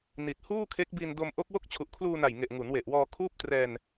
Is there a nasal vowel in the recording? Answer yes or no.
no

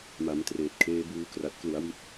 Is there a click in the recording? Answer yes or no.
no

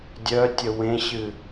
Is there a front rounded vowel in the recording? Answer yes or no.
yes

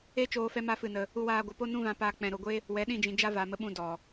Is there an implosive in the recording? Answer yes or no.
yes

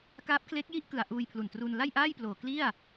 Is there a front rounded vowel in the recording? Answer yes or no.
no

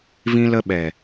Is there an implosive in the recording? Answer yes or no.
yes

